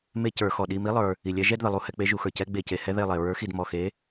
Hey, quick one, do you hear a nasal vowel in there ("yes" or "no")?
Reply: no